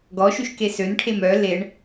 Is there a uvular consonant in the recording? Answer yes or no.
no